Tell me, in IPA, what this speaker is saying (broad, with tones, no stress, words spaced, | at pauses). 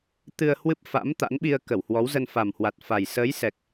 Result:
t̪ɨ˧ə̯hwɨ˦˥p̚ fa̰˧˥m t̪a̰˧˥nɓi˧ə̯ kə˧˩whwɔ˨˦wzə˧n fa˨˩mhwa˨˩t̚fa˨˩j səː˨˦jsɛ˨˩k̚